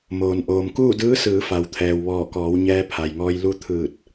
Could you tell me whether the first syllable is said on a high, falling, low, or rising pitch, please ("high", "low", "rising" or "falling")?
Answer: low